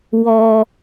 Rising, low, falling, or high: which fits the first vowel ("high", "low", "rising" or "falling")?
low